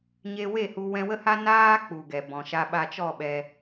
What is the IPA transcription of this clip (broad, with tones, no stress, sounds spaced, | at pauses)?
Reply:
ɲ e˧ w e˦˨ h u˧ w ɛ̃˧ w ə˦ h a˦ n aː˧ k͡p u˨ ɡ ɛ˨ b ɔ̃˨ ʃ a˦ ɓ a˧ t͡ʃ ɔ˦˨ ɓ ɛ˧